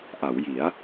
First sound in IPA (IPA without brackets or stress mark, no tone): ʔ